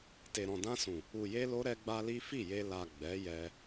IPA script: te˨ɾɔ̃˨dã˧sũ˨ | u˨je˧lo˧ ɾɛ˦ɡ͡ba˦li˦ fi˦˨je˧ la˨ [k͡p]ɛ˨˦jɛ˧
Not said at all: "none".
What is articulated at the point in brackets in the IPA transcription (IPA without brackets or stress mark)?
ɡ͡b